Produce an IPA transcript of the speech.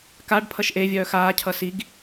kaɖ pʰʌʃʔe vʲœːxaː cʰʌsiɡ

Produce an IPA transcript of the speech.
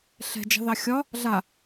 ɬɛ̤d͡ʒɑ̤ðɑ xʲɒ | ɮa

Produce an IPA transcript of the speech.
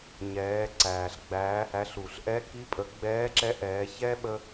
ɲɛː˩˧ ǀæː˩ɬɡ͡bæː˩˧hæ˩˧ɬu˩ɬ ʔɛ˧˥ki˧˥pʼə˩˧ ɡ͡bɛː˧˥ǁɛ˧˥ ʔɛː˩˧çɛ˥ ɓə˥

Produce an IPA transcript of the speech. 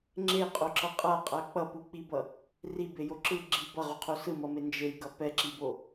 ŋ͡ǁeqʼoǁʌ qʼaqʼa k͡pʌpuk͡pibʌ | ribejo ǁɯ ɡ͡ǁi bʌʁuqʰo sɯmʌme nd͡ʒejɡʌ pɛǁibo

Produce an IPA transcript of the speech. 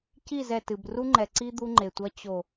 ci˦˨zɛ˨tɨ˨b ru˦ŋ͡ǃɛ˨ǀi˦ d̪u˦ŋ͡ǃe˨tʷɐ˦ t͡ɕo˨

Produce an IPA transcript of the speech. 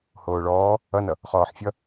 hoːɭɔː | ʌnʌ | χɔːħfʲʌ

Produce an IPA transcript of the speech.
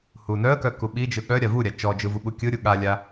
hunœə̯kœ kuɓid͡ʒɯ ɠœ ɾʲavuɾʲa t͡ʃɔd͡ʒɯ vuɓukʲɯɾʲu ɠalʲa

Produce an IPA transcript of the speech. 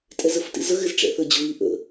tʼɛzəftḭzə ɣɪzʈ͡ʂɛ̰θə d͡ʑʊβi ʔə̰

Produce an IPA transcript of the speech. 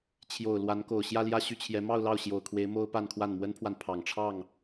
t͡ɕʰjo˨˩ʊ̯ lwa˧˥nko˨˩ʊ̯ ɕjä˥˧ljä˥˧ɕy˥˩t͡ɕʰjɛ˧˥ mɑ˥˧ʊ̯lɑ˥˩ʊ̯ɕjo˨˩ʊ̯kʰwe˧˥ɪ̯ mo˥ʊ̯pa˥˧nkʰwa˥˩n mwə˥npʰwa˨n pʰɑ˨˩ŋʈ͡ʂʰɑ˥˩ŋ

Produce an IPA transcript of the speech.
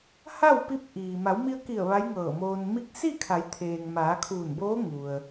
ha˥˨w pi˧˥p̚ ʔiː˩ ma˩˧wmi˧ə̯ki˧˩ə̯ ʋa˧˥jŋɤː˧˩moː˧n mi˧k̚ si˥˨kʰa˩˧jt̪ʰeː˩ŋ maː˩˧kʰuː˧˩nboː˧˥ ŋu˩ə̯

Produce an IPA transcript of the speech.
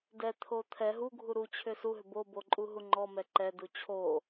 dɛt̪ʰo t̪ʰɛ ɦuɡʱu ɾut͡ɕʰʏ suɦʏ bobo ǃʼuɦuŋ͡ǃɔmɛ ǃɛdu t͡ɕʰo

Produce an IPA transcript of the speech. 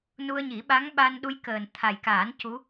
nu˧ə̯ɲi˨˩˦ɓa˧˥ŋ ɓa˧nɗu˧jkəː˨˩n t̪ʰa˨˩jkaː˨˩˦n cu˧˥

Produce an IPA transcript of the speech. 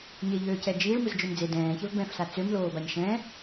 ɲeʎøːcɛ d͡ʒiːɭ mɯzd͡ʒømd͡ze dɛ̃ːçɛv bɛ̃fsa t͡sømloːbaɲ ʃɛ̃

